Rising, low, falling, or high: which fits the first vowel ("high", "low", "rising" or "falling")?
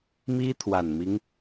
high